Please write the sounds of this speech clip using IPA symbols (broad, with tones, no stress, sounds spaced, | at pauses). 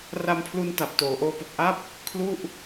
r a˧ m pʰ l u˧ n t a˨˩ p̚ t oː˩˦ ʔ oː˦˥ p o˨˩ k̚ ʔ a˥˩ p̚ | kʰ l u˥˩ ʔ